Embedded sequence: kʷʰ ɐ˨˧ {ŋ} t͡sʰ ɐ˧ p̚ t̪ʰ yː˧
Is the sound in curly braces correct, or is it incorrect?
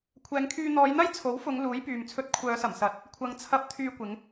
correct